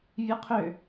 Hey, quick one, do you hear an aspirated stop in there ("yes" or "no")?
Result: yes